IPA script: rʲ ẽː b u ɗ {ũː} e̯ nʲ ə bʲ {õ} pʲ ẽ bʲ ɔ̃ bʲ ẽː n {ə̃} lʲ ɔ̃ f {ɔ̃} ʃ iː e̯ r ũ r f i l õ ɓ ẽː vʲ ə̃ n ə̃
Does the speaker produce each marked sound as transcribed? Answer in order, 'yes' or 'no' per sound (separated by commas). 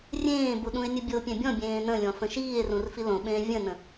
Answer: no, no, yes, no